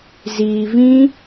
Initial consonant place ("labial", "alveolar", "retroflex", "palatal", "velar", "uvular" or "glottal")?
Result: alveolar